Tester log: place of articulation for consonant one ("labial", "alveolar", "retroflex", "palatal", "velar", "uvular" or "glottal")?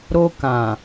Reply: alveolar